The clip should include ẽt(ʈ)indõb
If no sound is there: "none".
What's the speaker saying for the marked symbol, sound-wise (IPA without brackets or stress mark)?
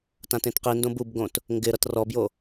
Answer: q